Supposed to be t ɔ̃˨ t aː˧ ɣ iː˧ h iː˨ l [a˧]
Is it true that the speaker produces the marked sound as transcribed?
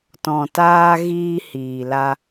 yes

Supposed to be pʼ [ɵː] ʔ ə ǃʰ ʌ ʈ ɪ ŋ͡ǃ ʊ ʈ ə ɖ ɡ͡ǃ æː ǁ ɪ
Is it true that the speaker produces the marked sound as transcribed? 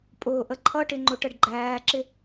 no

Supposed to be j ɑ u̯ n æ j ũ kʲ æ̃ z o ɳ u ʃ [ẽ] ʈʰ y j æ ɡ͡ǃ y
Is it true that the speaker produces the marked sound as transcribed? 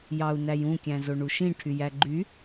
no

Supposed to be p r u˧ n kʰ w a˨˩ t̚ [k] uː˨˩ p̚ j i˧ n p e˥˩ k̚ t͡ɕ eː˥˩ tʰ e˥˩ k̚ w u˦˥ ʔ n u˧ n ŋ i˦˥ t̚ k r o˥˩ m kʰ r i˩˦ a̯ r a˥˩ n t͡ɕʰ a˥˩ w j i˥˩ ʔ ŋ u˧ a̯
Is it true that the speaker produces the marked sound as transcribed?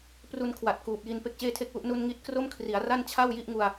yes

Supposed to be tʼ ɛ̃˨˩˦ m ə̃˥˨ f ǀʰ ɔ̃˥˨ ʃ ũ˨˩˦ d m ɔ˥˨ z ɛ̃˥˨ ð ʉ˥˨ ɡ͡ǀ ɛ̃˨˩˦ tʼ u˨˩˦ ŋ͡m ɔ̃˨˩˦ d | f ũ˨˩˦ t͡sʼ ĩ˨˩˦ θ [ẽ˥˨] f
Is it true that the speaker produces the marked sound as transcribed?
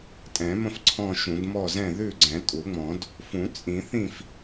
no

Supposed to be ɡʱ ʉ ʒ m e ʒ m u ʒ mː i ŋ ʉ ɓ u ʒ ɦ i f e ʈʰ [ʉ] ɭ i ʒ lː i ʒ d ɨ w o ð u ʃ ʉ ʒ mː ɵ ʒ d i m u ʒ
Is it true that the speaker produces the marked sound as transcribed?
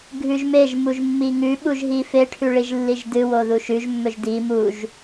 yes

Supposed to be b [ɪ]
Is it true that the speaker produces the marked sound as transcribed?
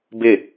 yes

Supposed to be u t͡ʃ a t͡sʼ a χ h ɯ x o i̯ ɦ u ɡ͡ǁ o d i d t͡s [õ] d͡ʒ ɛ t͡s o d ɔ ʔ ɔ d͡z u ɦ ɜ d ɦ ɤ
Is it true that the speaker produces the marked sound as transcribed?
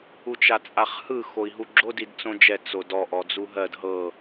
yes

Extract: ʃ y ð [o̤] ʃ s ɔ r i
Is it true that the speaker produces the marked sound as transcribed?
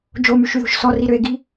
yes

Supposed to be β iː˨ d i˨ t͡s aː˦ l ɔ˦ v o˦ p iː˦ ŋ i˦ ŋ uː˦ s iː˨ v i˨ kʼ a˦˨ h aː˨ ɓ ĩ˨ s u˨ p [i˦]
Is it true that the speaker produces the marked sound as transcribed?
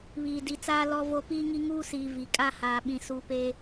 no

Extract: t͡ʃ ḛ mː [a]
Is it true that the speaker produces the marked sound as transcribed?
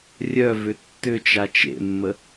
no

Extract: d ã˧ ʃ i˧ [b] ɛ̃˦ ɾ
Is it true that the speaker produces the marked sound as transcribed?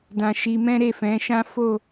no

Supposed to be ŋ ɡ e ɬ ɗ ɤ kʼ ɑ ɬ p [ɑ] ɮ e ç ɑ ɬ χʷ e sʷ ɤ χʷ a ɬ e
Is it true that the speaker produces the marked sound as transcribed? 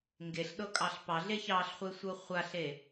yes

